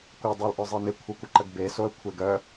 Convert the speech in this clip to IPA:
kʷə dˤolʔœzˤenɪ kʷʰœkʷəǃəɡbe soə̯kʷʰeɡœ

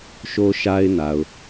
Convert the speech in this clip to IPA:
ʃo˦ ʃa˦ɪ̯na˨ʊ̯

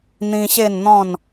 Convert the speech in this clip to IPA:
n̪ĩ˧ɕe˥˧nn̪ɔ̃˥˧n

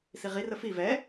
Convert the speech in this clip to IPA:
siʁi rəfi vɛ

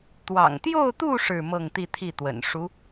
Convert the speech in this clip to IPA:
t̪wɑ̰˨˩ŋt̪jo˥˧ʊ̯t̪u˥˧ ʂɻ̩˥˧mɤ˥˧ŋt̪i˥˧t̪ʰi˥˩ t̪wə̰˨˩nʂu˧˥

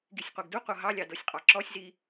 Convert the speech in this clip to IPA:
ɡisʲqʷeɡduqʷɤ ɦɑlʲɑ dɤsʲqʼɑǁɔsʲzi

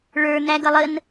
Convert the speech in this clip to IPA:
ɭə˞n̪æɡʌ lˠən

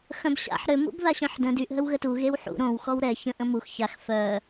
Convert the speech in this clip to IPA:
xœ̃bɕa̰ħ ɾø mṵbðaɕœ̃ħdə̃ dyʔ ɦəwɣətu ɣewħṵ ɾõw xɔwɾɛ çə̃ʔ ə̃mux çax fœ

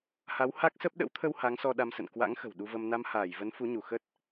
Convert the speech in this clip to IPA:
ha˨˦wha˦˥k̚sə˦˥p̚ ɗə̰˧˥wt̪ʰə˧w ha˨˦ŋsɔ˧ ɗa˧msə̰˧˨n kwa̰˧˥ŋxə̤˨˩w ɗu˧və˧m na˧mhaː˧˩jvə˨˦n fu˨˦ɲu˧˩ xə˦˥t̚

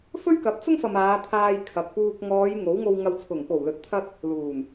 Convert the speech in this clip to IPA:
fɵ˥ɥkɐ˨˥p̚t͡sʊ˥ŋfɐ˨m aː˨˧ t̪ʰaː˧jkʰɐ˨k̚puː˧k̚ ŋɔː˨˧j ŋo˨˥wŋo˧w ŋɐ˨wt͡sʰʊ˨˩ŋpo˨˩wlɵ˨t̚ t̪ʰɐ˧t̚ | luː˨˩n

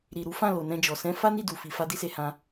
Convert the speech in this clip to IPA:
ɾi˨ ɾu˨˦fã˦˨ lo˨nɛ̃˧d͡ʒɔ˨ sɛ̃˧ fa˦ni˦˨ du˨fi˨fa˧ di˦se˧hã˧

